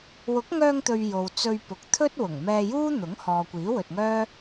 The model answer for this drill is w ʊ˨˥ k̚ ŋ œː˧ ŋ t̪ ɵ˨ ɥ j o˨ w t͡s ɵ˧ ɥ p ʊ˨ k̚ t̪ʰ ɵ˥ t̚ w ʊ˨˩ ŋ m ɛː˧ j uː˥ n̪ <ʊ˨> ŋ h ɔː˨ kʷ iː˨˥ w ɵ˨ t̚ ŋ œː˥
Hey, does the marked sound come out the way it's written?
no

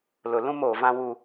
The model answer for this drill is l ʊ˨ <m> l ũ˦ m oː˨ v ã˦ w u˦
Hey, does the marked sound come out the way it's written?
no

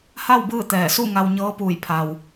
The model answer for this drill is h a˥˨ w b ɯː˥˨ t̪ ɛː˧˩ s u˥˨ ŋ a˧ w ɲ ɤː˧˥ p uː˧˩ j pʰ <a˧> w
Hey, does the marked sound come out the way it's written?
no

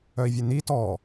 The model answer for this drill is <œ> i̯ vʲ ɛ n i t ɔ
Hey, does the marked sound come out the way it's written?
yes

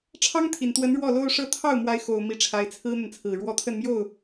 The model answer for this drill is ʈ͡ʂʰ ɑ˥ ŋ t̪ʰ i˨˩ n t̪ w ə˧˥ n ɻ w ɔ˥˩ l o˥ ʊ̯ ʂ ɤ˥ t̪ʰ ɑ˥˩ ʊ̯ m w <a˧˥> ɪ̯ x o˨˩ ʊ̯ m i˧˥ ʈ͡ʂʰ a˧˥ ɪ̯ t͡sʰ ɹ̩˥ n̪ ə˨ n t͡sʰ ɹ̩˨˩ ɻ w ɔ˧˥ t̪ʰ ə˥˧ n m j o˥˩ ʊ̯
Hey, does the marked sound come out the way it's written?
yes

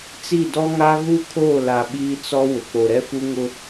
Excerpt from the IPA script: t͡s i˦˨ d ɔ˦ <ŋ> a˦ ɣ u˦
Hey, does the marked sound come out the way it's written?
yes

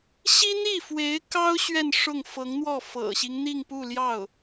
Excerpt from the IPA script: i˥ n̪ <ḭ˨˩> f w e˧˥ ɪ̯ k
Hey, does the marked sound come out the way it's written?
no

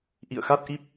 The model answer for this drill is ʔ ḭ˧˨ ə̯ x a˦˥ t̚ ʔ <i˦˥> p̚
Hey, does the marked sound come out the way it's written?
yes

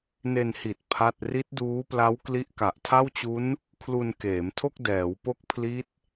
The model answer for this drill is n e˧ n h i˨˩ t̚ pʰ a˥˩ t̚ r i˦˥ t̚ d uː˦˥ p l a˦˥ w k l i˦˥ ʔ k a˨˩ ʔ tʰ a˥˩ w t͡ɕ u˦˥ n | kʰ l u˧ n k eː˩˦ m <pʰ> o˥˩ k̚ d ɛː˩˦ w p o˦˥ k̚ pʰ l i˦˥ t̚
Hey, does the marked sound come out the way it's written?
no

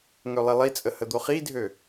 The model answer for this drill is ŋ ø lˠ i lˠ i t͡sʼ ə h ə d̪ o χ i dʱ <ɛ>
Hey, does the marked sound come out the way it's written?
no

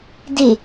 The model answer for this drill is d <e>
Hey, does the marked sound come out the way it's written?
yes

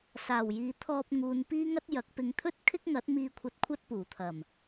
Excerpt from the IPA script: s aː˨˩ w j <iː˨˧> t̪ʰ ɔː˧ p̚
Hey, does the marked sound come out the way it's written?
yes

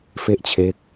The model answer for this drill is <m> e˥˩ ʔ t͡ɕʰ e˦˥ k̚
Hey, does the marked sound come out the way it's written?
no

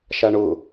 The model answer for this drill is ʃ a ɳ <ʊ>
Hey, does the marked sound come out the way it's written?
yes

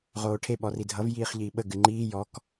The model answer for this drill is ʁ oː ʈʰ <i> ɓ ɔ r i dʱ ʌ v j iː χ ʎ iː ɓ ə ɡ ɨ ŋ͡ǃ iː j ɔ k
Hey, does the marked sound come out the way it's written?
no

